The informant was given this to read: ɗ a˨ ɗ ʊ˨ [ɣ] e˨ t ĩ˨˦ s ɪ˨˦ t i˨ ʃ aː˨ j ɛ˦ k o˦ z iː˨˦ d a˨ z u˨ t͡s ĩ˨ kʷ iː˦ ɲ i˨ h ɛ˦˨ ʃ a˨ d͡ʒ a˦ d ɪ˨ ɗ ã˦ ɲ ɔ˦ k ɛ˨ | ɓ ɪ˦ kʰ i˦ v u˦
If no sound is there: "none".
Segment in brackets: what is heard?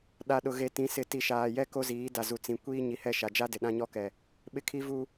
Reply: ɣ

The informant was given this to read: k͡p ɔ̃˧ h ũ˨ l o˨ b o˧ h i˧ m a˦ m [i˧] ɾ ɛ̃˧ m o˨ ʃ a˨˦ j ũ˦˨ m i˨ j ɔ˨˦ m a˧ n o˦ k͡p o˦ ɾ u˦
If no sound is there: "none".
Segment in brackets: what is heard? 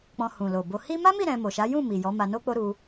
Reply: i˦˨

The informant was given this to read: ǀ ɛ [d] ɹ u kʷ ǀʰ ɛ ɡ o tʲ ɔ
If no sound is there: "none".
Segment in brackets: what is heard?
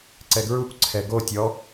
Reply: ɡ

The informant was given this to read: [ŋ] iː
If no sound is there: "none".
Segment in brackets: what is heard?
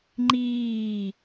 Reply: ŋ͡ǃ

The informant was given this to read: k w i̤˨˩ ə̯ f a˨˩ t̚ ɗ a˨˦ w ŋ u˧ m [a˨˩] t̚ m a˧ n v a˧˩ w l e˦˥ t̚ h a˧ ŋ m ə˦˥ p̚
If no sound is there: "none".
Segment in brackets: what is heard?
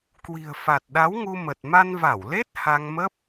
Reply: ə˨˩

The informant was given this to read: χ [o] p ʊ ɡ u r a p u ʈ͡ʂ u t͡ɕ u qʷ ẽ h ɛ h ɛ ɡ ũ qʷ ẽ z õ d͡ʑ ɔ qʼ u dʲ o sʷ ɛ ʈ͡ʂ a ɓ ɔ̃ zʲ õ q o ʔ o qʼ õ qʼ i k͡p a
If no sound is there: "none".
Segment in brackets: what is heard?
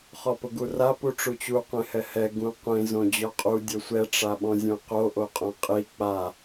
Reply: ɔ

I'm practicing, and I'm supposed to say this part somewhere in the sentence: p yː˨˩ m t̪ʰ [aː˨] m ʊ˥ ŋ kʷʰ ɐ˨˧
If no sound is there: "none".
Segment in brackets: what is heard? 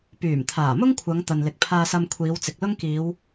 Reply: aː˨˩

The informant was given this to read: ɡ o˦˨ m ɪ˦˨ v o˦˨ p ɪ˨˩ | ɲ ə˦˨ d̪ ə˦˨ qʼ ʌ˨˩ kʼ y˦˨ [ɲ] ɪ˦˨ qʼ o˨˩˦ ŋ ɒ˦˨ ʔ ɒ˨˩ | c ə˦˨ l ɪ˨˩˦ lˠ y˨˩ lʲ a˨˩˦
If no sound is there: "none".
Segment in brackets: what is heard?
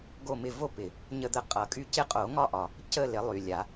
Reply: c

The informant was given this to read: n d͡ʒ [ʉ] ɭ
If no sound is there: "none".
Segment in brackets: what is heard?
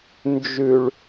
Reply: ʉ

